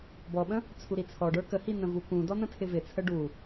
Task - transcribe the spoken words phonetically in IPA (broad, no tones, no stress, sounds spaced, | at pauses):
b ɔ ɓ ə̃ | t͡sʰ u ɾ i t͡sʰ ɔ ɖ ə˞ k ə h i n̪ ə̃ v u k ũ d ɔ n̪ ə̃ tʰ ɪ v ɪ t͡sʰ ə ɖ u